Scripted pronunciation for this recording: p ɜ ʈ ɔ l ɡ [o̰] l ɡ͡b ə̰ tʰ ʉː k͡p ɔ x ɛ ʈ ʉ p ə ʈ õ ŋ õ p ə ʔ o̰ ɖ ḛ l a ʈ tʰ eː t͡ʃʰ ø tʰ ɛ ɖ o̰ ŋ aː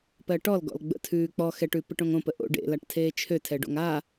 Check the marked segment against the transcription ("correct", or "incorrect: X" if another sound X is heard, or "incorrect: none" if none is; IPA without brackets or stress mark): incorrect: ɔ̰